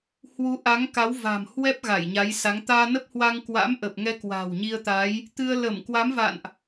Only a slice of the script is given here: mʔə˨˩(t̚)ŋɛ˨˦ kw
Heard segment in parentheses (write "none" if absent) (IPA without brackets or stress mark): p̚